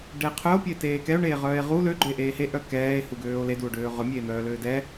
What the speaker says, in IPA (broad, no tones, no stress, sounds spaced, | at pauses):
ɖ ɛ e̯ qʰ œ o̯ pʲ ə e̯ t eː k ɛ o̯ ɳ eː ʁ œː e̯ ʁ u l ø ɡ͡ǃ ø e̯ ʔ eː h e ʔ œ k ɛː e̯ h u ɡ øː o̯ l e d u o̯ ɖ øː ʁ œ mʲ eː n̪ œː l øː d ɛ